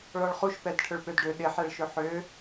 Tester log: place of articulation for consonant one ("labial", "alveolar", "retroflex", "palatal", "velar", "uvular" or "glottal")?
retroflex